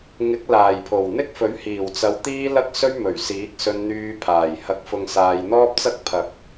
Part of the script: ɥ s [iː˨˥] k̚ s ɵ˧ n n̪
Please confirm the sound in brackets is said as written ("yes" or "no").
yes